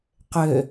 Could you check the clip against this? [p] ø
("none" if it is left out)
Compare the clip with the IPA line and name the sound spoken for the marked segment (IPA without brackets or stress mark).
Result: q